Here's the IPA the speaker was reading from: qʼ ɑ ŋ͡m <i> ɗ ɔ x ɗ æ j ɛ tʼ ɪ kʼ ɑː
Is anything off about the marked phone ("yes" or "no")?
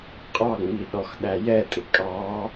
no